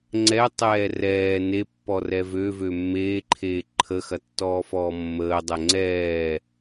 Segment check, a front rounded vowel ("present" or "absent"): present